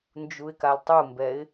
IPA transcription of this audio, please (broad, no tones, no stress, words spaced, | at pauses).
nd͡ʒuɪ̯kaltˤumbɛɪ̯